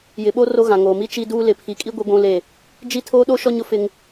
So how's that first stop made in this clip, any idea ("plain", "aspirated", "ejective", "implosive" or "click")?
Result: implosive